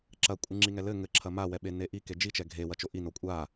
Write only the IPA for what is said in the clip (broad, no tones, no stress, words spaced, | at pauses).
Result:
ǁɐkʷʼɨ ŋ͡ǁiŋɛlɘ ŋɘǁʰɐ mawɛɓe neʔi ked͡ʒit͡ʃɛ ɡʱe wɐt͡ʃoʔi nokʷʼa